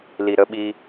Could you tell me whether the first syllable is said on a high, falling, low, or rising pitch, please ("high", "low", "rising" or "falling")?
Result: low